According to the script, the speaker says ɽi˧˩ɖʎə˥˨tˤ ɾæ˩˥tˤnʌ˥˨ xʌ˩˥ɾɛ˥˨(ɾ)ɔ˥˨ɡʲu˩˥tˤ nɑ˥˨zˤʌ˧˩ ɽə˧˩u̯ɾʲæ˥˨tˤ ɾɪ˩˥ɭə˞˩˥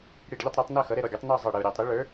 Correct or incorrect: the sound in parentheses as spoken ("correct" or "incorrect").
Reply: correct